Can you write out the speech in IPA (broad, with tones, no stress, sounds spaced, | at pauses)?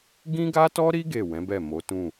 ɡ ĩ˦ ɡ a˦ t ɔ˦ ɾ i˦ ɡ e˦˨ w ɛ̃˨˦ b ɛ˦˨ m o˨˦ t ũ˦˨